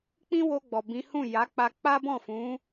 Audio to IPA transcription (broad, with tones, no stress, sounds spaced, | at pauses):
k͡p ĩ˦ w o˧ ɡ͡b ɔ˨ b ĩ˨˦ h ũ˦˨ j a˨˦ k͡p a˧ k͡p a˦ b ɔ̃˦˨ f ũ˨˦